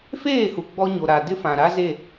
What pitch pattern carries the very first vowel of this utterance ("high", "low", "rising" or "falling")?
falling